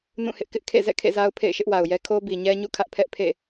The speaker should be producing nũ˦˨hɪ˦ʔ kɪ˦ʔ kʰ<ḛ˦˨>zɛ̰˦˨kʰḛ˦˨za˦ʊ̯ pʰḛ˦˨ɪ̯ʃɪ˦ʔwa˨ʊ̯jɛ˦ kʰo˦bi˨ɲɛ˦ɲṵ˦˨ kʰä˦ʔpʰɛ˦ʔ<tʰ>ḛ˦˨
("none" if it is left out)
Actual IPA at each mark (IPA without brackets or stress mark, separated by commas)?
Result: ḛ˦˨, pʰ